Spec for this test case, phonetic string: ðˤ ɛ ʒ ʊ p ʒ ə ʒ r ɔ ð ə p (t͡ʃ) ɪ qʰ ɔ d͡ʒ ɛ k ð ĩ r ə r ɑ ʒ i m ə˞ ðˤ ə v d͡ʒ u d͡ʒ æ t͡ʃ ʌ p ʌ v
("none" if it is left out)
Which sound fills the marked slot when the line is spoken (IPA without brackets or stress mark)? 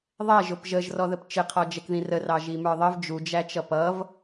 t͡ʃ